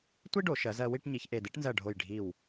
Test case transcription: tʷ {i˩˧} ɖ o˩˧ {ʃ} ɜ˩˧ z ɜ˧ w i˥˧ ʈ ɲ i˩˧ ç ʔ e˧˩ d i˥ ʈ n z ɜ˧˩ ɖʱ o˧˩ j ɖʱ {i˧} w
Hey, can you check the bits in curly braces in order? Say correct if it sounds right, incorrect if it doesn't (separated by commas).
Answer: incorrect, correct, incorrect